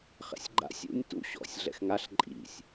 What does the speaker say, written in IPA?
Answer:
χ ɛ̰ sʲ ɡ͡ǃ a̰ sʲ ṵ nʲ t ṵ ɕ ɔ̰ sʲ ɮ ɛ̰ x ŋ a ɬ ǃʼ ḭ sʲ

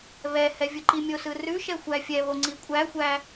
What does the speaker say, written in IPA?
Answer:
β ɛ h ɛ vʲ ɯ ǃ i mʲ o s ɯ r ʉ ʃ ɛ xʷ æ fʲ ɛ β o ŋ͡ǀ i kʷʼ æ xʷ æ

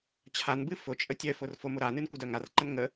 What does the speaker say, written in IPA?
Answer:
t͡ɕʰ a n b ɨ f ʊ t͡ʃʼ ə tʲ œ f ʊ r f o m ʊ ɾ a n ɨ n kʷ ɪ d œ ŋ a r ǃ ə n ŋ ə

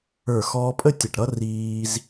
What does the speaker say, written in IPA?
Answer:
ə˞˧˩ x ɔː˧ pʼ ə˥˧ tʲ ə˧˩ ʈ ɾ ʌ˥ r iː˧ z

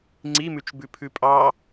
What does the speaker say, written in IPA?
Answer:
ŋ͡ǀ i m ʉ t͡ʃ b ʉ pʰ ʉ pʼ ɑ

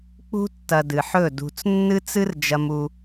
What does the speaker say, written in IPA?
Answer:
k͡p ṳ˧ tː ɐ˨ d ɨ˨ ħ ɵ˦˨ d ṳ˨ t͡s nː ɨ˦ t͡s ɨ˦ r d͡ʒ ɐ˧ m u˧

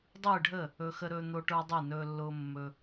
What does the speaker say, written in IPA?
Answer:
dˤ ɯː˥˩ ɖʱ ə˥˩ | ɵ˦ x ə˦ ɾ ɵː˦ n̪ o˦ ʈ ə˞˦ dˤ ɯ˥˩ n ɵː˦ lː ʊː˦ mː ɵ˦

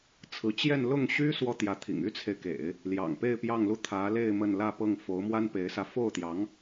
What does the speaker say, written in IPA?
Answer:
t͡sʰ ɹ̩˧˥ t͡ɕ j ɛ˥˧ n l ʊ˥˩ ŋ ɕ y˥ s w ɔ˥ t̪ j ä˧˥ t̪ʰ ḭ˨˩ ŋ y˥ t͡sʰ e˨ ɪ̯ k ḛ˨˩˦ ɪ̯ | l j ɑ̰˨˩ ŋ p e˥˧ ɪ̯ p j ɑ˥˧ ŋ l u˥˩ t̪ʰ ä˧˥ l e˥˧ ɪ̯ m ə˥˧ n l ä˥˧ p ɤ˥˩ ŋ f o˧˥ ʊ̯ m w a˥ n p e˧˥ ɪ̯ s ä˧ f o˥˩ ʊ̯ t̪ j ɑ˧˥ ŋ

